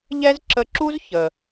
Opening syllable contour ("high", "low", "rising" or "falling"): high